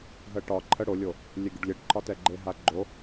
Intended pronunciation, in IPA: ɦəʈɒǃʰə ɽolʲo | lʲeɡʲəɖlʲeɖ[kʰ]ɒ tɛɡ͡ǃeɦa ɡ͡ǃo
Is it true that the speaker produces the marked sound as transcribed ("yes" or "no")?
no